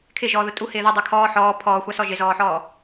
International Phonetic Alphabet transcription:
kʰɪʒɔːðʊ tʼuhɪː ðodˤo kʰɔː ħɔː pʰɔːxʷasɔ ʒɪzɔːħɔː

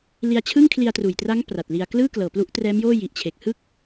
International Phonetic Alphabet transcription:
li˧a̯t͡ɕʰɯ˥˩ŋ kʰli˧a̯truː˨˩jtra˦˥ŋ pra˨˩t̚li˧a̯ klɯː˥˩klɤː˨˩plu˦˥ʔ trɛː˦˥mjoː˥˩ji˨˩ʔt͡ɕʰe˨˩k̚ hɯ˦˥k̚

